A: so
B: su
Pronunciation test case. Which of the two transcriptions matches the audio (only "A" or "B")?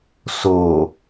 A